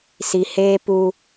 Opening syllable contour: low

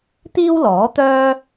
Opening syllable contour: high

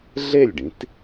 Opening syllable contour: falling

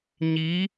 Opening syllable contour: rising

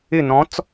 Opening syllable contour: falling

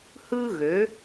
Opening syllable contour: high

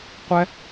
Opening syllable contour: high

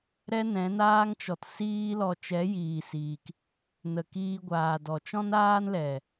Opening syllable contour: high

